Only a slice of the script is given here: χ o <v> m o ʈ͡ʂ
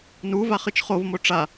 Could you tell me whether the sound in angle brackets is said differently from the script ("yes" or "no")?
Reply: no